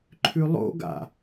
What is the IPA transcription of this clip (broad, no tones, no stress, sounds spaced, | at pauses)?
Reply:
ǃʰ ʉ lˠ o̰ ɡ a̰